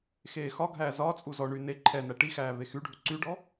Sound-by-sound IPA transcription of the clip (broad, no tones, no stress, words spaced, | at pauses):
xeːxɒɡʱæː zɒt͡sʼu zɔɳy ne ǃʰɛ næʈixæː vexyɖʱu ǀyɖɔ